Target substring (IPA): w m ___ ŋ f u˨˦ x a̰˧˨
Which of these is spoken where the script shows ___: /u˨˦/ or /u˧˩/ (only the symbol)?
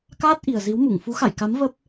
u˧˩